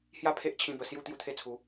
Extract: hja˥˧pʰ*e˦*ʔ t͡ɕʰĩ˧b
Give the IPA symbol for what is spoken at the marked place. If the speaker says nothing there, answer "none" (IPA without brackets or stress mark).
e˦